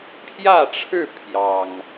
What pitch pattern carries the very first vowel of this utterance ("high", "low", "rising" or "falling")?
falling